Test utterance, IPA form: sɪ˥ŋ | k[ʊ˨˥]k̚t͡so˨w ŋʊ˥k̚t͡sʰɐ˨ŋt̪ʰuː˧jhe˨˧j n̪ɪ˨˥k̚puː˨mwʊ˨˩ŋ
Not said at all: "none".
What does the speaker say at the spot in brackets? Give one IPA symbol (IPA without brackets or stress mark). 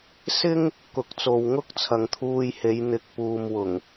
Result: ʊ˨˥